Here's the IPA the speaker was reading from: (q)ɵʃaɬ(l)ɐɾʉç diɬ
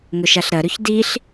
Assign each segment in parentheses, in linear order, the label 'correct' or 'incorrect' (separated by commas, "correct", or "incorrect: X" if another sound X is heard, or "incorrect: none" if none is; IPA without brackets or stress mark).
incorrect: ŋ, incorrect: ɾ